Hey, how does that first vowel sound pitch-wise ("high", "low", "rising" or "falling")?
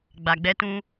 low